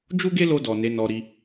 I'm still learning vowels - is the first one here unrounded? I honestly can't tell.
no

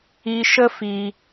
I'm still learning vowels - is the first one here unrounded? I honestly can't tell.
yes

